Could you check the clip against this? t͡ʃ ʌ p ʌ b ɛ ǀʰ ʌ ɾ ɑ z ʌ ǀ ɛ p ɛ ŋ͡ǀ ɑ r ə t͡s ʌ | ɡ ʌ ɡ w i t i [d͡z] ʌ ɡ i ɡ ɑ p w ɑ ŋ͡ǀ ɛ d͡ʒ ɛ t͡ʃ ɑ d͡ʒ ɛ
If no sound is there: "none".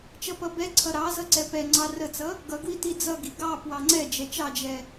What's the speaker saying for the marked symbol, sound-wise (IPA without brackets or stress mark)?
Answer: d͡z